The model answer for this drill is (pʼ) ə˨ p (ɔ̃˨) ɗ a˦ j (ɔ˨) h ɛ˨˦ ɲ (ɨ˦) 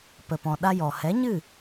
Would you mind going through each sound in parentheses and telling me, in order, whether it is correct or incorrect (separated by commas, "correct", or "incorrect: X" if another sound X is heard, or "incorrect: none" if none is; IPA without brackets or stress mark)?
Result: incorrect: p, correct, correct, incorrect: ɨ˦˨